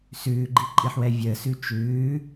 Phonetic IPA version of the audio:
s ʉː ɡ͡ǃ i ǃʼ i ħ w ɛ vʲ əː s ʉ t͡ʃ ʉː

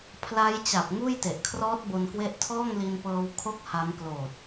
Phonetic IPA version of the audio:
pʰ l a˦˥ j t͡ɕ a˨˩ p̚ ŋ uː˥˩ j t e˨˩ ʔ kʰ r ɔː˦˥ t̚ b o˧ n k w e˥˩ ʔ tʰ ɔː˥˩ ŋ l i˧ n p ɤː˧ w kʰ o˦˥ k̚ h a˦˥ m k l oː˨˩ t̚

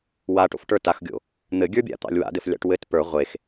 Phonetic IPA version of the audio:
w a ʈ o̰ f ʈ ə˞ t a x ɡʲ o̰ | n̪ ɘ ɡʲ ə˞ bʲ a̰ t̪ ɑ̰ lʲ w a̰ d ɘ f lʲ ɑ̰ ʈ w ɘ t p ə˞ ʁʷ e x

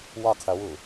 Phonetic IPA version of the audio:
w ɒ qʰ ə w ʊ

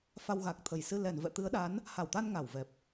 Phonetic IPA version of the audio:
f a˧ w ɣ a˨˩ k̚ t̪ʰ ə˨˩ j s ɨ˧ l ɛ˨˩ n v ɛ̰˧˨ t̪ ɨ˨˦ ə̯ ɗ a˨˦ n | h a˧˩ w t̪ a˧ n ŋ a˧˩ w v ɛ˨˩ p̚

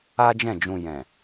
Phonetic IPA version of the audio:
a˦ d͡ʒ ɛ̃˦˨ d͡ʒ ũ˧ j ɛ̃˨

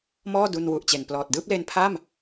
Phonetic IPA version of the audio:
m ɔː˥˩ d u˧ n w u˨˩ ʔ t͡ɕ e˨˩ n p l ɔː˨˩ t̚ d ɯː˥˩ p̚ l e˦˥ n pʰ a˥˩ m

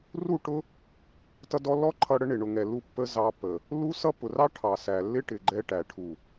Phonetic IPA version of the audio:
r u˦˨ ʈ ʊ˦ | t ʌ˧ d ɔ˧ lː ɔ˦ ǃʰ ʌ˧ ɽ ə˦ ɳ ɪ˨ ɳ ʊ˨ ŋ ɛ˨ lː u˧ pː ə˦ z ɑ˧ pː ə˨ | l u˦ s ʌ˦ p ʊ˨ r ɑ˦ ʈʰ ɑ˨ s æ˨ lː ɪ˦ ʈ ɪ˨ ɡ͡ǃ ɛ˧ ʈ æ˨ ʈʰ u˨

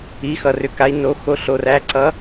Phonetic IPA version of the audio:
i˨˦ x ʌ˨ r ʏ˨ k a˨˦ i̯ n o˨˦ x o˨˦ ɬ o˨ r æ˨˦ ǀ ʌ˨˦

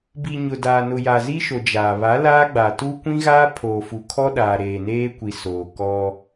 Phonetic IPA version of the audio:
b i˨ ɲ ʊ˨ d aː˨ n ʊ˨ j a˨ z i˦ ʃ o˨ d͡ʒ aː˨ β a˨˦ l aː˦ ɡ͡b a˨ t u˦ kʷ ĩ˦ ɣ aː˦ pʰ oː˨ f u˨ kʰ ɔ˦ ɗ aː˨ ɾ eː˨ n eː˦ kʷ i˨ s oː˨ k ɔ˦

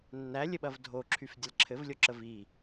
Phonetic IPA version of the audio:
nː æ lʲ ɘ ɓ ɐ v dʱ o ǁʰ y f dʲ ə l ǁʰ ɘ v lʲ o ǁ ə v i

